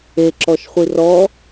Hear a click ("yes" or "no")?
yes